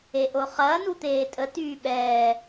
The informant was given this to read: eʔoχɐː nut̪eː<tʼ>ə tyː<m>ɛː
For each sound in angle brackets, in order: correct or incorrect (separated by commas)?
correct, incorrect